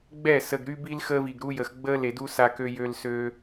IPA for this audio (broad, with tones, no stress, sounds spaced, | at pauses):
ɡ͡b ɛ˦˨ s ə˨ ɡ ɾ y˦ b i˦ l x əː˦ v i˨ ɡ ɾ u˦ j ə˨ x ɡ͡b əː˦ l e˨ d u˦ s a˦ k ø˦ j ø˦ l s ø˦